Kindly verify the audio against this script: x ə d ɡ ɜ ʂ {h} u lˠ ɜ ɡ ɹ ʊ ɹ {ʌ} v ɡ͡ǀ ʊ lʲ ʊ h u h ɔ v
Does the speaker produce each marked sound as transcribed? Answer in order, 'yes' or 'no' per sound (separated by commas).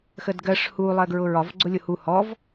yes, no